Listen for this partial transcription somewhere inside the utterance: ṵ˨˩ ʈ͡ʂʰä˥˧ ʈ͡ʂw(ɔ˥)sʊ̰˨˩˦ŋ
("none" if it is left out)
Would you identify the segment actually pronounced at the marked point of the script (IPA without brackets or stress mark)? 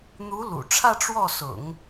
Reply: ɔ˥˩